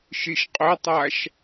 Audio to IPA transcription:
ʃ i ʃ qʼ ɵ tˤ a ʃ

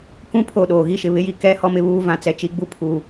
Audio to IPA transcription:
k ũ˦ pʰ o˦˨ ɗ oː˨ ɣ i˦ ʃ ɪ˨ β ɪ˦ j i˨ k ɛ˦˨ h ɔ˦ m ɪ˨ β uː˦ v ã˨ t͡s ɛ˨ t͡ʃ i˨ ɡ͡b u˦ pʰ u˨

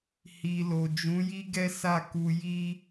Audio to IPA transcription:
h i˨ l o˨ d͡ʒ ũ˨˦ j i˦ ɡ ɛ˦ s a˦˨ k u˧ j i˦

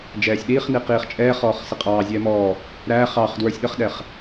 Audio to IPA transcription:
d͡ʒ ɛː sʲ ɗ iː χ n i q iː χ t͡ʃʼ ɛː χ ɔː χ s ɪ qʼ ɑː zʲ ɛː m ɔː | ɾ æ χ ɑ χ d w ə˞ sʲ ɗ ə χ ɗ ɛ χ

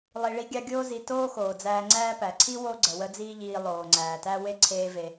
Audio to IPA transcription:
lˠ i˧ ɭ i˥ ɡʲ ɑ˥ ɡʲ oː˥ z i˧ t oː˥ x oː˩ d͡z æː˧ ŋ͡ǀ æː˥ p æ˩ ǀʰ i˥ w o˥ ɡ͡ǀ ə˩ w ə˥ d͡z iː˥ ʎ iː˧ lˠ oː˩ ŋ͡ǀ æː˩ t æ˥ w e˥ ǀʰ eː˧ v e˩

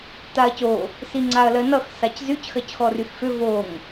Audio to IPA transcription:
t a ɐ̯ c o | s i ŋ͡ǀ a ɐ̯ l ɜ n ʌ x s a c z y c x ɜ c x ɔ r y x f ʏ v o ŋ

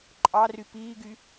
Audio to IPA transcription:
ǃʼ ɑ r y p iː ɡ y

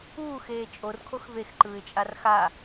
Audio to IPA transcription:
uː x eː t͡ʃʼ o r kʰ o x v e x ǃ ɯː ɪ̯ t͡ʃʼ a r x a

